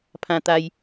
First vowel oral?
no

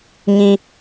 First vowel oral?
no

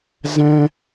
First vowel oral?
no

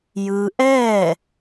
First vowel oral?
yes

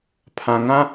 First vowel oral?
no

